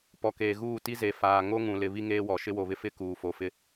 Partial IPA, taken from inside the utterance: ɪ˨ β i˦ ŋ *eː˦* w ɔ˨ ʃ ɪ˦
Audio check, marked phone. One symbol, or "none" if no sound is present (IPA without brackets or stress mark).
eː˦